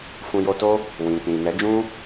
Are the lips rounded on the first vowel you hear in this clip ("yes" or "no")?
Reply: yes